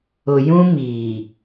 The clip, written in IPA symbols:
ʊ˨ j ũ˦ m iː˨

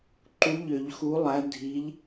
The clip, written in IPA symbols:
ǃ u˨˥ ʎ ø˨˩˦ ʎ x u˨˥ lˠ æ˨˥ dʱ i˨˥ ʎ

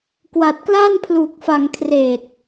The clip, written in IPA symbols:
k w a˨˩ t̚ k l aː˥˩ n pʰ l uː˨˩ k̚ f a˧ ŋ kʰ r eː˨˩ t̚

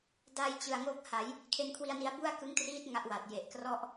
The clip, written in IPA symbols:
d a˧ j t͡ɕ ɯ˨˩ a̯ ŋ o˦˥ k̚ h a˩˦ j | kʰ e˧ n kʰ w i˧ a̯ n i˧ a̯ b u˥˩ a̯ k ɯ˦˥ ŋ t r iː˦˥ t̚ ŋ a˦˥ ʔ w a˨˩ t̚ j e˨˩ ʔ k r ɔ˥˩ ʔ

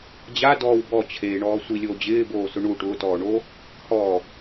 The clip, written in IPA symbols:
d͡ʑ a d ɔː w b ɔ t͡ɕʰ eː ɳ ɔː sʷ i lʲ oː d͡ʑ ɪː b oː s ʊ ɳ u ʈ ʊː t ɔː ɳ o | h ɔ

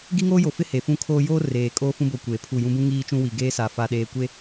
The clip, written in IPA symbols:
ɡ i˦ ŋ oː˦ j o˨ f ɪ˦ h e˨ f ũ˦ kʰ oː˦ j oː˦ r eː˨ kʼ oː˦ f ũ˦ b o˨ kʷ eː˨ pʰ u˦˨ j ũ˦ b ũ˦ ŋ iː˦ t͡ʃ ũ˦ w i˨ ɡ eː˦ s a˨ f a˨ ɗ eː˨ kʷ e˦

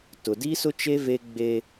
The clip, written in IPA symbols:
t ʊ˨ d i˦ s ʊ˦ t͡ʃ e˦ v e˦ ɡ͡b e˦

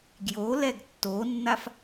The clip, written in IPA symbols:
ɡ j o l ɛ ɡ tː o nː a f

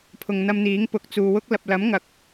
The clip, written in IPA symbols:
pʰ ʊ˧ ŋ n̪ ɐ˥ m n̪ iː˨˥ ŋ p ʊ˨˥ k̚ t͡s uː˨ w ʊ˥ k̚ l ɐ˨ p̚ l ɐ˨˥ m ŋ ɐ˨ k̚

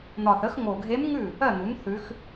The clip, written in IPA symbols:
n̪ ɒ˨˩ θ ə˩˥ x ŋ o˨˩ ɡʱ e˧˥ m ŋ ʉ˥˩ | ɜ˥˩ n̪ u˩˥ n θ ʉ˧˥ x

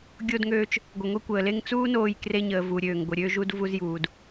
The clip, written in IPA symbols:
ɡʲ o˧ d ŋ øː˧ t͡ʃ | ɡʷ ə˩ ŋʷ i˧ kʷ əː˩ l e˧ ŋ t͡s uː˥ n oː˧ j k r e˧ ɲ əː˩ v u˩ ɾʲ øː˩ ŋ ɡʷ ə˩ ɾʲ ø˧ ʒ u˧ d v u˧ z j uː˩ d

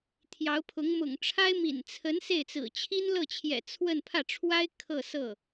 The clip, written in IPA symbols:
t̪ʰ j ɑ˧˥ ʊ̯ pʰ ʊ˧˥ ŋ m ʊ̰˨˩ ŋ ʈ͡ʂʰ a˥ ɪ̯ m ḭ˨˩ n t͡sʰ ə˧˥ n s e˥˩ ɪ̯ t͡s ɹ̩˨˩ t͡ɕʰ i˥ n l ɤ˥˩ t͡ɕʰ j ɛ̰˨˩ t͡sʰ w ə˥˧ n pʰ ä˥˩ ʈ͡ʂʰ w a˥ ɪ̯ kʰ ɤ˥˧ s ɤ˥˩

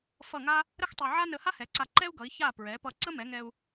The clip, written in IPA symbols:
f ʌ˥˩ ŋ a˥ | ɾ ə˥ x tˤ ɛ˧ ʕ a˥ n ə˧ h a˥ h ɛ˩˥ ǀ a˧ ǃ ɛ˥ u̯ ɡ ʌ˩˥ i̯ ç a˥˩ p ɹ ɛ˩˥ p ʌ˧ ǀ ə˥ m ɛ˩˥ ŋ ɛ˧ u̯

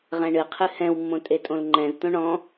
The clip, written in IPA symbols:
ʁ ɛ̃ ɳ ɨ qʰ ɨ h ɛ̃ w mː õ tʼ e tʼ õ l ŋ͡ǃ ɛ̃ z t̪ õ ɳ ɔ̃

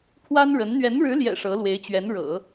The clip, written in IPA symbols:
pʰ w a˥ n ɻ ə˧˥ n n̪ ɥ ɛ˧˥ n ɻ ɻ̩˧˥ l j ɛ̰˨˩ ʂ ɤ˧˥ l w e˧˥ ɪ̯ t͡ɕ ɥ ɛ˧˥ n ɻ ɤ̰˨˩˦

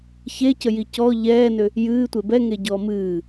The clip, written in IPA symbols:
ç e c ə j i c ɔ ʎ ɛː n ʏ | j ɨː tʷ e b ɛ ŋ e ɟ ɔː m ɨː

